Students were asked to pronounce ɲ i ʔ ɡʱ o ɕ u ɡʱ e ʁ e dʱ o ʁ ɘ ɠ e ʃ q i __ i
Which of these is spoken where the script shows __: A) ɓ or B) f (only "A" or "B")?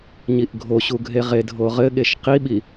A